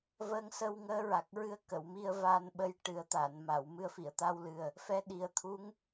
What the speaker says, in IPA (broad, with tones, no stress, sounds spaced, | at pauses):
v əː˧ ŋ s ə˧ w ŋ əː˧˥ ɹ a˨˩ k̚ ɹ ɨ˧ ə̯ k ə˨˩˨ w m i˧ ə̯ v aː˧ n ɓ ə˧ j ʈ ɨ˨˩˦ ə̯ t̪ a˨˩˨ n m a˨˩˨ w m ɨ˧ ə̯ f i˨˩˨ ə̯ t̪ a˧ w l ɨ˨˩ ə̯ | f ɛ˧˥ ɗ i˨˩ ə̯ t̪ʰ u˧˥ ŋ